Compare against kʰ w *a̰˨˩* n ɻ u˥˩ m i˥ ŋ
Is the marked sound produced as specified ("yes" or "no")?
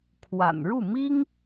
yes